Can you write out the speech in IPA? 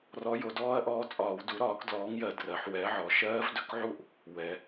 r ɔ˨˥ j o˩˧ d ɔː˦˥ ɐ̯ ʔ ɔː˨˥ t͡sʼ ɒː˧˩˧ w d u˨˥ ɾ ɒː˨˥ k d l ɔː˨˥ ŋ j ɜ˧˩˧ d r ɜ˩˧ ħ w ɛ˨˥ ʕ ɔ˩˧ ʃ ɜː˦˥ v d ɵ˨˥ k ʕ u˥˧ ʔ | w ɛ˩˧

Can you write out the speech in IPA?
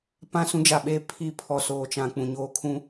p ã˦˨ s ũ˦ d͡ʒ a˨ ɓ eː˦ pʰ i˦˨ pʰ ɔ˨ s oː˨ t͡ʃ ã˨ k͡p ũ˨ ɲ oː˦ kʰ ũ˦

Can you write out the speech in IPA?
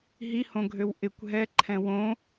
ɦ i h õ ɡʱ ø w ʔ ɪ kʷ ɦ ɛ ǃʰ ɛ̃ w õ

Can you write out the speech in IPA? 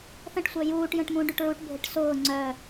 θ ə̃ ʈ sʷ œ j uː ʈ j ə̃ ʈ m ũ ɖ y ʈ ɹ u ʈ bʱ ɪ ʈ s ʊː ŋ͡ǀ œ

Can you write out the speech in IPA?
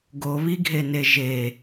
ɡ o β i ɡʱ e n e ʒ e

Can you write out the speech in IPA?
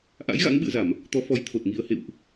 ʔ a̰˧˥ j ɣ a̰˧˥ ŋ ɓ ɨ̰˧˨ ə̯ z a˧˩˨ m | t̪ ɔ˨˦ f ɔ˨˦ j t̪ʰ o˨˩ t̚ ŋ i˧ ə̯ h ḛ˧˨ w ʔ

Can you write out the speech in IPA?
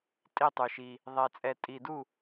tʼ i˥˧ tˤ ʉ˧ ʃ i˧ | ðˤ ɛ˧ t͡sʼ ɛ˧ tʼ i˧ d u˥˧

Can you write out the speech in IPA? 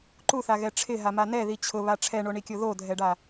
ǃ u θ a ɣ ɛ ʈ͡ʂʰ ɪ ɦ a m a n ɛ ð i t͡ɕʰ ʊ β a ʈ͡ʂʰ ɛ ɳ o ɳ i kʲ o ð o dʱ ɛ ɖ a

